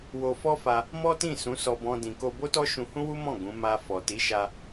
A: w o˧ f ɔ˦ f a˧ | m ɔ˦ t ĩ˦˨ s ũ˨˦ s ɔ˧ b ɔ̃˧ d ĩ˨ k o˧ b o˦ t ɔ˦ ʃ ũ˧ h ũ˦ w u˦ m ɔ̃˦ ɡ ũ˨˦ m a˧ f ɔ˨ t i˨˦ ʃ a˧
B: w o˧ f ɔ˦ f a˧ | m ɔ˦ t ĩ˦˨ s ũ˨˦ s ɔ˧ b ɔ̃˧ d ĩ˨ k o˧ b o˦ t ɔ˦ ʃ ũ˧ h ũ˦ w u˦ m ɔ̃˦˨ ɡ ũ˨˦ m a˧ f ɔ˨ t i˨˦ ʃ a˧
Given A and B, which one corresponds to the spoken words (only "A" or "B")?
B